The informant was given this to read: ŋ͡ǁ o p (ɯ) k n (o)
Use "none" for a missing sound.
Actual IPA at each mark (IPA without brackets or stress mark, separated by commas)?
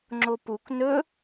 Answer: u, ɵ